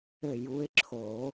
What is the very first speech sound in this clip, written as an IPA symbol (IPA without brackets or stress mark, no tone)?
ɘ